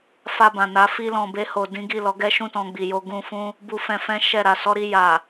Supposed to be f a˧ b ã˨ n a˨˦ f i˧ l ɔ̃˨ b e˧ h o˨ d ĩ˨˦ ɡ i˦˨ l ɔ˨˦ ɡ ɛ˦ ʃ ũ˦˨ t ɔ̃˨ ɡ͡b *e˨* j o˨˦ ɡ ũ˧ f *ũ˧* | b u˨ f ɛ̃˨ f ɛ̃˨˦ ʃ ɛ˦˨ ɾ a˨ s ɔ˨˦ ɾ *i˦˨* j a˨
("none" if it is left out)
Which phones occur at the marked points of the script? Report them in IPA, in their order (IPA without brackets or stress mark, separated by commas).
i˨, ũ˦, i˧